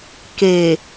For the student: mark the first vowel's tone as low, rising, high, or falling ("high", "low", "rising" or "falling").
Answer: low